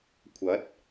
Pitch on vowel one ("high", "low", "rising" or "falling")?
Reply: rising